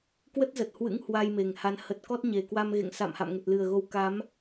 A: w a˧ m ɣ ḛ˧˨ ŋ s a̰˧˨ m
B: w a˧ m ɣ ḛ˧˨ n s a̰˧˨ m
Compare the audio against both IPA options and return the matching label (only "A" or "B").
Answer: A